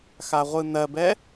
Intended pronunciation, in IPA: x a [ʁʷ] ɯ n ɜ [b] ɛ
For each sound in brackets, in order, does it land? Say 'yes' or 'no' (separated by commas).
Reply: yes, yes